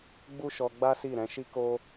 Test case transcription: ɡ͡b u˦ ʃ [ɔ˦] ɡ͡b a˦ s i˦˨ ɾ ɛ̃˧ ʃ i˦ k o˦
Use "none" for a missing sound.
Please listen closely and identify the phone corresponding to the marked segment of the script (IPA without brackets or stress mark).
ɔ˧